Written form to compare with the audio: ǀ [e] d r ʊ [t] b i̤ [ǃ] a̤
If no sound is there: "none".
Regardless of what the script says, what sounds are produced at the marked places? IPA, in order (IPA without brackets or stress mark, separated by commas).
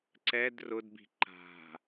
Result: ɛ, d, ǃ